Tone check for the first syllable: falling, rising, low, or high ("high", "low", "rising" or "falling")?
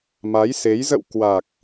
rising